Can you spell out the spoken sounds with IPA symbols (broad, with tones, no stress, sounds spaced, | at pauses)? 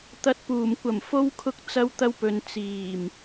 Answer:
t̪ ɐ˨ t̚ p uː˨˩ m kʷ ɐ˨˩ m f o˧ w kʰ ʊ˧ k̚ t͡s ɐ˧ w t̪ ɐ˧ w p ɵ˨ n t͡s iː˨˩ m